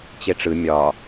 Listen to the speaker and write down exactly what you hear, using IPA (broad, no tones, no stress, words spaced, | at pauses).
t͡ɕeʈ͡ʂɯ mʲɒ